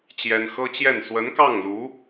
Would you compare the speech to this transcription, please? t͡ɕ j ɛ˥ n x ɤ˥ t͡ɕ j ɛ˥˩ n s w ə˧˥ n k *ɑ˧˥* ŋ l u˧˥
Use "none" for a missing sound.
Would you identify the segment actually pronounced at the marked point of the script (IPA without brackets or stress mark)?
ɑ˥˩